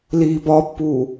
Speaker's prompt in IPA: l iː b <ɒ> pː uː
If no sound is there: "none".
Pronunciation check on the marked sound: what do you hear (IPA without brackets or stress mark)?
ɒ